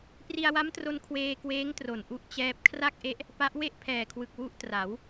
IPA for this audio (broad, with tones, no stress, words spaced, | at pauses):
pri˧a̯wa˦˥mtro˧n kʰweː˧kweː˦˥ŋtro˨˩n ʔu˦˥ʔt͡ɕɛː˦˥p̚ kʰra˥˩k̚ʔe˦˥ʔ | pa˦˥ʔ we˥˩ʔpʰɛː˨˩kʰwɯ˨˩k̚ wu˦˥ʔtra˩˦w